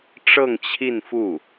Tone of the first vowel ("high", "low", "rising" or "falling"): falling